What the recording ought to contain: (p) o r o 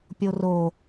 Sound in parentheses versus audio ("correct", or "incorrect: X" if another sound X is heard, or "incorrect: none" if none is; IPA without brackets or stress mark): incorrect: pʲ